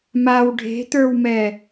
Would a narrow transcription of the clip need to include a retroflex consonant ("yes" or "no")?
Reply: yes